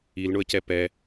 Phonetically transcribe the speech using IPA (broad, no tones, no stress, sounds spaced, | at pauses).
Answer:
i l ɳ ʊ ə̯ c ɛ p ɛ